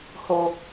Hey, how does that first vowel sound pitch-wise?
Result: low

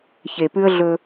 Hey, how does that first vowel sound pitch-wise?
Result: low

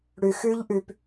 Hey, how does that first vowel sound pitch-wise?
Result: low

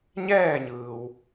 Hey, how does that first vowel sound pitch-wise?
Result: falling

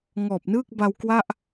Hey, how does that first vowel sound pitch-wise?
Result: low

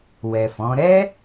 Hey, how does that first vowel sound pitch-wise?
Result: low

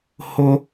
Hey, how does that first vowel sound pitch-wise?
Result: high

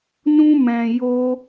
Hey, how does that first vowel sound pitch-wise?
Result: high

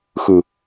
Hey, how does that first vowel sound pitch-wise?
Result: high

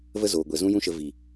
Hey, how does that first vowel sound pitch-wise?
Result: high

